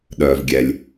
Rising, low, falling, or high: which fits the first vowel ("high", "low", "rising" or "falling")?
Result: low